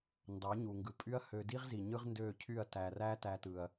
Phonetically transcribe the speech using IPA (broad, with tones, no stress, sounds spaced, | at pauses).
n d ɑ˨˦ ɲ u˨ ŋ ɡ ɯ˨ pʼ y˦ ɐ̯ h ø˧ d i˦ ʁ z i˨ ɲ ɯ˦ ʁ n d øː˦˨ cʰ y˦˨ ɐ̯ t æ˨ r æ˦ t æ˧ t ɯ˨ ɐ̯